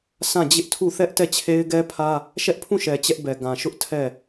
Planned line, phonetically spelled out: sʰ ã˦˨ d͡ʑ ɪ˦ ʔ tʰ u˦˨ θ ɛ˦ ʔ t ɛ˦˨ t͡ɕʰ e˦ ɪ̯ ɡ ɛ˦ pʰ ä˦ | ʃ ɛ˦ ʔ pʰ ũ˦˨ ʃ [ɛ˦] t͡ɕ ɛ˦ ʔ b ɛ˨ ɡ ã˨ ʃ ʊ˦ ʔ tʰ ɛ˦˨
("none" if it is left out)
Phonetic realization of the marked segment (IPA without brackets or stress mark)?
ɛ˨